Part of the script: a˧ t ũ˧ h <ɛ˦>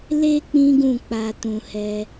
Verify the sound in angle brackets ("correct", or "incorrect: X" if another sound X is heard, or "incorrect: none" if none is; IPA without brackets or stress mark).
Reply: correct